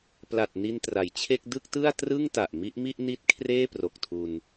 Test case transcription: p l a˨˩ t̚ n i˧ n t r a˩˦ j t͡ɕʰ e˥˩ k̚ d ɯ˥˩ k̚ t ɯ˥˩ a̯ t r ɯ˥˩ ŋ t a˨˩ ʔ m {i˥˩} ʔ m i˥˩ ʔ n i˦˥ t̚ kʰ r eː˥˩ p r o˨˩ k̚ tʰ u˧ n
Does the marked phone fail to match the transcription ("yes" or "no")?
yes